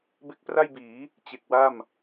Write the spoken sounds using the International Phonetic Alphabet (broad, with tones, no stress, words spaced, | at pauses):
be˦˥k̚pra˥˩jbiː˩˦ | t͡ɕe˨˩k̚wa˥˩m